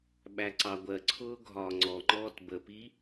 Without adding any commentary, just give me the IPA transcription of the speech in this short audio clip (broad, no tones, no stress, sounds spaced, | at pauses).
ɓ æ ǀ ɑ ɡʷ ɜ ǀʰ ʊː ɡʱ ɒː ŋ͡ǀ ɔ ŋ͡ǃ ɔː t b ə p i